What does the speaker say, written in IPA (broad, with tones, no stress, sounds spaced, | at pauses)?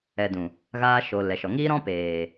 ɛ˨ d ũ˨ | ɣ aː˧ ʃ o˨ l ɛ˨ ʃ ɔ˨ ŋ iː˦ ɾ ɔ̃˦ p eː˨